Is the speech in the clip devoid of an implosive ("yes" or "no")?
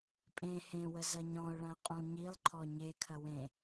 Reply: yes